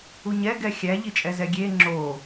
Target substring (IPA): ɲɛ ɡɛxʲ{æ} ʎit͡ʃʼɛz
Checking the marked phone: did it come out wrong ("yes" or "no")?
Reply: no